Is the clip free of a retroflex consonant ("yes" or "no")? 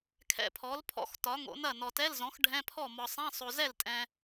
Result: no